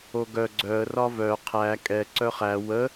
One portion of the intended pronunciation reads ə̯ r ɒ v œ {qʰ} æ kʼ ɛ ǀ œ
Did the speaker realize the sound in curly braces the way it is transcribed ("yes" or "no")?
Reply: yes